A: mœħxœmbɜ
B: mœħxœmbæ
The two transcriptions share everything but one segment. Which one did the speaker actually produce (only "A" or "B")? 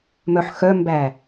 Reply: B